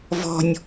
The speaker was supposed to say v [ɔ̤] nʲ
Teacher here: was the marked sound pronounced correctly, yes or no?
yes